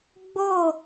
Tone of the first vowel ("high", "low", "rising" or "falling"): falling